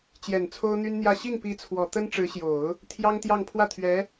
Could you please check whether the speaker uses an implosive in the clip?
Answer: no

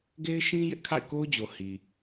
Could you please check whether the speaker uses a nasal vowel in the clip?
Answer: yes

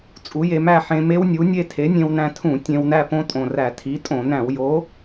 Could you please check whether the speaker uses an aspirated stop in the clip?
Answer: yes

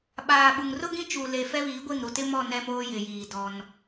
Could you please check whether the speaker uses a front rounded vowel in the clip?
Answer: no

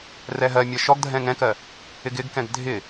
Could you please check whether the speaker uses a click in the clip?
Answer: no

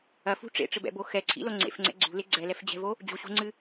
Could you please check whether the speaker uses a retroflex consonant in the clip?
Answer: yes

